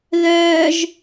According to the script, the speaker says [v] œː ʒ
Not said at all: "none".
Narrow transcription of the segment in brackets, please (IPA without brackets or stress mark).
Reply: ð